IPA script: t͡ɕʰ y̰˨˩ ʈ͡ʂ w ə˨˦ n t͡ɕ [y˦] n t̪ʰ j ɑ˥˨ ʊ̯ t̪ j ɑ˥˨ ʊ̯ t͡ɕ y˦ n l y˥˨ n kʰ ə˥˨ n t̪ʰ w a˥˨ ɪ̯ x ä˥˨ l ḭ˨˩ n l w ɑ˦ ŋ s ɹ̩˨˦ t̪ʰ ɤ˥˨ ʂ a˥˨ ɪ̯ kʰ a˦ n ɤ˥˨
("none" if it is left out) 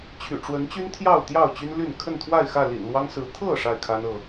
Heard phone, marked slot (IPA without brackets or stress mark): y˦